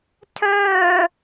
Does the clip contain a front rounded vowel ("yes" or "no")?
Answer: yes